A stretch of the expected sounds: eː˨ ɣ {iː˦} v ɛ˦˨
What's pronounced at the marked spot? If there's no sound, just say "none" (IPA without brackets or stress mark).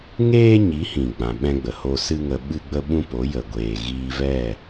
iː˧